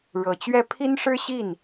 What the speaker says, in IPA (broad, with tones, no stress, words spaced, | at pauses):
ɻɤ˨˩t͡ɕɥɛ˥˩ pʰi˥nʂɻ̩˥ ɕi˥˩n